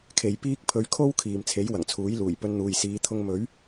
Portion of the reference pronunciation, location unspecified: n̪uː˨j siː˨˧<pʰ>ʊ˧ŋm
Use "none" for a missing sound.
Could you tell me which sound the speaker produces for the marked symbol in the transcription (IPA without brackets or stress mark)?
t̪ʰ